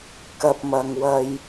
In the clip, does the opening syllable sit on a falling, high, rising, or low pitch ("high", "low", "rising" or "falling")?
low